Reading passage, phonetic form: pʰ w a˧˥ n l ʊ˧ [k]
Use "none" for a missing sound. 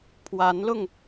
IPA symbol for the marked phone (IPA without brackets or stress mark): ŋ